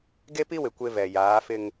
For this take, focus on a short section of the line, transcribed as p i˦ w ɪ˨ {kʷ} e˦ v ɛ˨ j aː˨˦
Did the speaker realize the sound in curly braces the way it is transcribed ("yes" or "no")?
yes